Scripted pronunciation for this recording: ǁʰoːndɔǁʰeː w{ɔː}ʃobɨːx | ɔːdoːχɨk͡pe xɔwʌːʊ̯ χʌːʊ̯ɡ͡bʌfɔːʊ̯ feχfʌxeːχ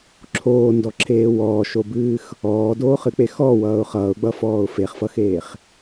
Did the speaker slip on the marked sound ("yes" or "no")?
no